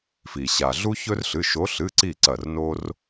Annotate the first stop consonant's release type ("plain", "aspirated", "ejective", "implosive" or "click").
click